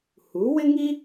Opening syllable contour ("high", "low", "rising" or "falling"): rising